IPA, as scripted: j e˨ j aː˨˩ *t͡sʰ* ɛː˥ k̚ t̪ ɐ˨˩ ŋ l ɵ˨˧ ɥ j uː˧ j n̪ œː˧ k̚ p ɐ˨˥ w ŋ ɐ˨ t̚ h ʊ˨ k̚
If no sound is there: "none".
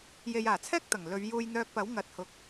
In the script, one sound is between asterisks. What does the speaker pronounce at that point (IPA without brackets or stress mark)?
t͡sʰ